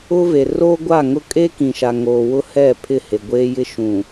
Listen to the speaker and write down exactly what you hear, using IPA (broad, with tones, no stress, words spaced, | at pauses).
ʊ˦ve˨ roː˦ɡʷa˦˨ ŋʊ˦ kʼe˦kĩ˨ʃa˨ŋoː˨ wʊ˦hɛ˦˨pʰɪ˦˨ he˨ɡʷeː˦jɪ˦ ʃũ˨